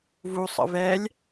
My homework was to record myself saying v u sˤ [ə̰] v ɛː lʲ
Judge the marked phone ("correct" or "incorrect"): correct